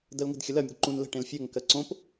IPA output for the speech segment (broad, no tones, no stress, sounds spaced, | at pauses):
d ɜ l ŋ ə̤ d xʲ ə l ɜ mʲ ə̤ d ǃ ũ n l ə̤ ʈ ẽ l fʲ ɜ ŋ k ɜ ǀ õ p